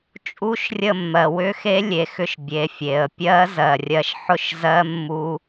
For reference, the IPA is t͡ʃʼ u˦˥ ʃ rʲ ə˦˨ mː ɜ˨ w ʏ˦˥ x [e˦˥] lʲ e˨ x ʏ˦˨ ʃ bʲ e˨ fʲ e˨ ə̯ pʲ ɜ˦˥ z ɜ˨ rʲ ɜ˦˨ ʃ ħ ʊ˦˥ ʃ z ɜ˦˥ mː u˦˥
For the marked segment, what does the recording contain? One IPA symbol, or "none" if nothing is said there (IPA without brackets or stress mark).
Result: e˦˥